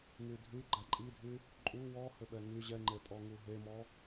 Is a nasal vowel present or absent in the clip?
absent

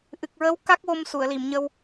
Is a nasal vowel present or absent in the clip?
absent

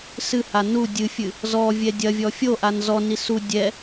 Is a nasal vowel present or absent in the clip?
absent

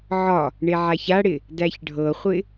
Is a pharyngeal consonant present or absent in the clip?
present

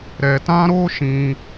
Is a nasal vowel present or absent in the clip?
present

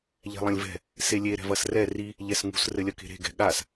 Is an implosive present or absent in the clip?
present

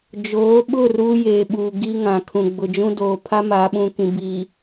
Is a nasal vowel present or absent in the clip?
present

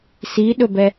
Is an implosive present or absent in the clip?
present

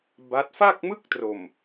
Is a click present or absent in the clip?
absent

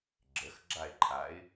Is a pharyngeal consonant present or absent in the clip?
absent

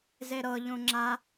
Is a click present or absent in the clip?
present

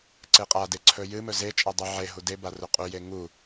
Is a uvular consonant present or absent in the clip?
present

